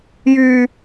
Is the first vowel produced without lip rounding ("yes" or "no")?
no